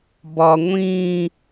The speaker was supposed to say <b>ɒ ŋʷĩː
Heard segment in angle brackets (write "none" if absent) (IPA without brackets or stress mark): b